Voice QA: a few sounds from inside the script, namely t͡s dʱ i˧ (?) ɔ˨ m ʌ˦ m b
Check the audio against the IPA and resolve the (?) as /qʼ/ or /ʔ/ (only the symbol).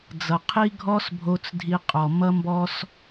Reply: qʼ